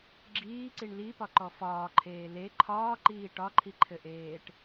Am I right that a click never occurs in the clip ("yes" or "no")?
no